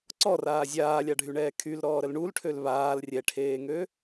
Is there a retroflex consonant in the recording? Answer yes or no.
yes